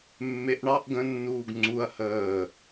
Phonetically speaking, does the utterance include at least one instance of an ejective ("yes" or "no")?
no